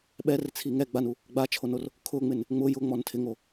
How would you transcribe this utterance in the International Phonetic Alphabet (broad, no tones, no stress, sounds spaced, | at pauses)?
ɓ ɛ r t͡sʰ i ŋ ɛ ɡ͡b a n u | ɡ͡b a t͡ʃʰ o n o r | kʰ ʊ ŋ͡m ɪ n | ŋ͡m ʊ j ʊ ŋ͡m ɔ n tʰ ɪ ŋ o